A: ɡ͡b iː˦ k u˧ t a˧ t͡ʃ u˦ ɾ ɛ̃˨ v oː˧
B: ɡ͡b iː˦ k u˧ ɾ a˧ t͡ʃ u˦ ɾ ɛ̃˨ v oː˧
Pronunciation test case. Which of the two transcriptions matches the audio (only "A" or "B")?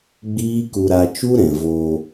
B